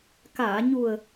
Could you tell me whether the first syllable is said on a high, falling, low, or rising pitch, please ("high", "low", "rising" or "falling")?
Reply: low